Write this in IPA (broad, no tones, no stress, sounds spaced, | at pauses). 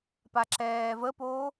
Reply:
p a ǁ ɛː v ə p oː